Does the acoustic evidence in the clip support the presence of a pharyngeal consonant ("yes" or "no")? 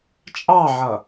yes